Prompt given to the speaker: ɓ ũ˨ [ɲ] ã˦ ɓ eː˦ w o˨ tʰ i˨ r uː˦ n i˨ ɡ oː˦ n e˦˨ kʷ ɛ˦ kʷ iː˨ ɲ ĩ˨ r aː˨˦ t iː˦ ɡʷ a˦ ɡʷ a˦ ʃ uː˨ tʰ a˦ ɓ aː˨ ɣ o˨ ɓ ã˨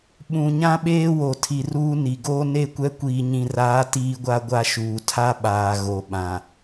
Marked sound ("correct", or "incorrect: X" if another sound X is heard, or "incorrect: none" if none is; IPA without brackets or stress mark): correct